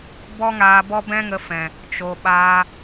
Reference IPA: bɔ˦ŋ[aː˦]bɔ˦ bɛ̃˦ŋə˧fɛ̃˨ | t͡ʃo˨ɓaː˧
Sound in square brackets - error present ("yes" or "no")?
yes